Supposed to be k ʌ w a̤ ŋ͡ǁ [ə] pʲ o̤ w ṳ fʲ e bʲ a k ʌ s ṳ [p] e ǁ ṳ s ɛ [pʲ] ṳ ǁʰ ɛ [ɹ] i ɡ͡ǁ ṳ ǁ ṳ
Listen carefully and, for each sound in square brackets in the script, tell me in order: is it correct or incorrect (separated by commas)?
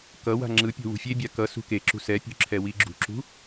incorrect, incorrect, correct, incorrect